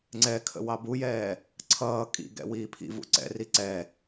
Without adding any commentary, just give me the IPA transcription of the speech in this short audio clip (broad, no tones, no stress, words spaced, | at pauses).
ŋ͡ǀɛkʰə̰ wɑbujɛː | ǀʰʌː kʼḭɡɛ̰ wiːpʰḭvṵ ǀɛ̰ri ǀɛ